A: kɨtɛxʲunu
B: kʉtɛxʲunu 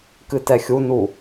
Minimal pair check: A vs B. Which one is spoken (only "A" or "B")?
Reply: A